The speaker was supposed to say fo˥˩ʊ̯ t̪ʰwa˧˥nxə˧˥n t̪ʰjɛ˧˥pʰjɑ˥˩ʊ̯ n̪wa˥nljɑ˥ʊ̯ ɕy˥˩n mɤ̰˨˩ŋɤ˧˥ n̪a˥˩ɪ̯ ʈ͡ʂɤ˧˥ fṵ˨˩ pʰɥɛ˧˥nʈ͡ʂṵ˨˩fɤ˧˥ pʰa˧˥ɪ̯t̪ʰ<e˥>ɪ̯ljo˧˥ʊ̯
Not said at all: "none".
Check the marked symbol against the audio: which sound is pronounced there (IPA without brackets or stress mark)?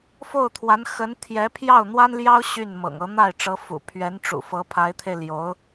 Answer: e˧